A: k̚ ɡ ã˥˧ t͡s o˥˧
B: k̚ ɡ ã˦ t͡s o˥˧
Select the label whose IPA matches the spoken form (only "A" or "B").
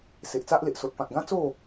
B